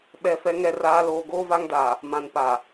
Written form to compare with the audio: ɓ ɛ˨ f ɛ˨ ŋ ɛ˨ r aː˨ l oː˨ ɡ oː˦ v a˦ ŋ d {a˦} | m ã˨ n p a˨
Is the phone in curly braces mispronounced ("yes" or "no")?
yes